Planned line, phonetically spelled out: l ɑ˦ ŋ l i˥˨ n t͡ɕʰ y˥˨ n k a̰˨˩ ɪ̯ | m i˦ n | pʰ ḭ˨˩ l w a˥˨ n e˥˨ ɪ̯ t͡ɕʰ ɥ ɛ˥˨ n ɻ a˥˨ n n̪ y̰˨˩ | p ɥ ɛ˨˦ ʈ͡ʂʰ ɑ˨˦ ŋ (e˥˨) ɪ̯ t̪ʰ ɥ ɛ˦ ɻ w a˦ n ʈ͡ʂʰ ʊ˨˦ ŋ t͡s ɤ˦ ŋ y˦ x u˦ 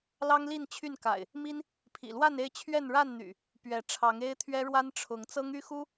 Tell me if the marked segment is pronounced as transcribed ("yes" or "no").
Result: no